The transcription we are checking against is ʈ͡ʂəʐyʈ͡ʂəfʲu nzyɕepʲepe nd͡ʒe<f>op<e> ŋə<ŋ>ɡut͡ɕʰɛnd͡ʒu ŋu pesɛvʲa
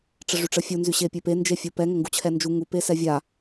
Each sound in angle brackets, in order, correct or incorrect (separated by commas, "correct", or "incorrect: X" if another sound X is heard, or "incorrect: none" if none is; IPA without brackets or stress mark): incorrect: fʲ, incorrect: ɛ, correct